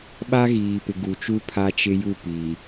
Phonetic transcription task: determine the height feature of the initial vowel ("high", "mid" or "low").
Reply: low